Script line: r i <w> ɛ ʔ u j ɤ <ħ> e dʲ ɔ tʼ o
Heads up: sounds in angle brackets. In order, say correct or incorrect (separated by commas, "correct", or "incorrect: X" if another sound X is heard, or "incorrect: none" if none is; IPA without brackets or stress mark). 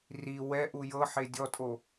correct, correct